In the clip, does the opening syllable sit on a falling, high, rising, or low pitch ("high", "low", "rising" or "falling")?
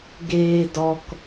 high